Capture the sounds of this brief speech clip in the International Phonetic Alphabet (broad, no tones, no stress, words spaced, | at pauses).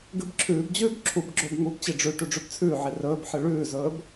ɡɨbǁʰʉːbd͡ʑʉːb ǁʰubɡ͡ǁɵːb ŋubt͡ɕi ɖ͡ʐʉʈʉ ɖ͡ʐʉbt͡sʰʉːʕi rɵːbħɨ ɭʉːzɵːb